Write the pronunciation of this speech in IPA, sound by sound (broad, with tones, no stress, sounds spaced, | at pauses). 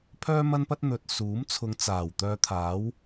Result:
pʰ œː˥ m ɐ˥ n p ɐ˥ t̚ n̪ ɵ˨ t̚ s uː˨˥ m t͡sʰ ʊ˨˧ ŋ t͡s aː˨˩ w t̪ œː˧ t̪ʰ aː˨˥ w